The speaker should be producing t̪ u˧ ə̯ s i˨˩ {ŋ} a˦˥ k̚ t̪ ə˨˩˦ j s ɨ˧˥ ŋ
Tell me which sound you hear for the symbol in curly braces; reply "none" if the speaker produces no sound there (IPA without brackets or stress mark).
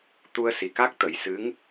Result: k